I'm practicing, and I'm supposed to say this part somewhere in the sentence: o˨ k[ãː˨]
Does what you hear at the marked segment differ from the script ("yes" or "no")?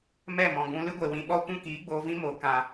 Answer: yes